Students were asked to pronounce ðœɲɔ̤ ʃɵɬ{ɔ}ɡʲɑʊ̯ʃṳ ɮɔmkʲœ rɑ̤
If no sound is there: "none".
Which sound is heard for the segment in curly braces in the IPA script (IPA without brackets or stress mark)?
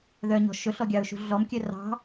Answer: ɔ